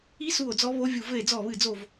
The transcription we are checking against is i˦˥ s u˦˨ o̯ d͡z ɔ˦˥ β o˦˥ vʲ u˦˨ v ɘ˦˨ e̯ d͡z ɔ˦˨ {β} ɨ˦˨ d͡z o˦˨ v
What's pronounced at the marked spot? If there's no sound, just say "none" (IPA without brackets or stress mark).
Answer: β